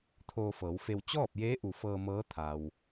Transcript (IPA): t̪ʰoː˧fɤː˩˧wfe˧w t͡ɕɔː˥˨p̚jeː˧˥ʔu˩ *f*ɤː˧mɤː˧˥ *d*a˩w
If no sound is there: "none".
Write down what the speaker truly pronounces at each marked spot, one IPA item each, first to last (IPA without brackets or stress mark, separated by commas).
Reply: f, t̪ʰ